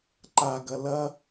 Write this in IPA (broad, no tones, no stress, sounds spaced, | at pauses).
ǃ a ɡ ɐ l ɐ